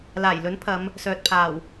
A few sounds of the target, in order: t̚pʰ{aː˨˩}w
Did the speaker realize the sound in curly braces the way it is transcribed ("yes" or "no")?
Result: yes